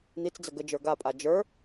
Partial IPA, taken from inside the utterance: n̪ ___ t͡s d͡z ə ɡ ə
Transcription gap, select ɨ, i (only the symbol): i